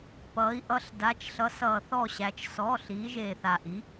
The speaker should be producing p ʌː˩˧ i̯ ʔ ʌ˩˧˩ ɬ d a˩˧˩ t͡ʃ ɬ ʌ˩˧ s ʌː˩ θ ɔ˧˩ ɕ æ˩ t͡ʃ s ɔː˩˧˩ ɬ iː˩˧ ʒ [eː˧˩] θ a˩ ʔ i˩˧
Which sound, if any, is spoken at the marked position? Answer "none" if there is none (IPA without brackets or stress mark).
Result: eː˩